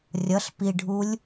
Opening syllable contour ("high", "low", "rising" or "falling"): rising